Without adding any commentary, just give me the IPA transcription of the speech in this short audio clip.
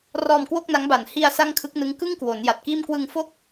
r ɔː˧ m k w o˥˩ k̚ n a˦˥ ŋ b a˨˩ n h i˧ a̯ s a˥˩ ŋ kʰ ɯ˦˥ k̚ n ɯ˦˥ ŋ k ɯ˥˩ ŋ k w o˩˦ n j a˨˩ t̚ k iː˥˩ m k w ɯ˧ ŋ f o˥˩ k̚

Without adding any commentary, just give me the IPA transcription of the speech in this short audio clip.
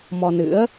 m ɔ˧ n ɨ̰˧˥ ə̯

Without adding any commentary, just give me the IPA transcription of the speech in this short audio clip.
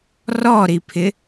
r ɔ ɾ i pʰ ɪ

